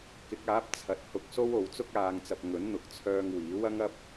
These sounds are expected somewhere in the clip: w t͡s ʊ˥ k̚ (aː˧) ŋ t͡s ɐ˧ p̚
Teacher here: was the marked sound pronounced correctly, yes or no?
yes